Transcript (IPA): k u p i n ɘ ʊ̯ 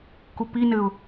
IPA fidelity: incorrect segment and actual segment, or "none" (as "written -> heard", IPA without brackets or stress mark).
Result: none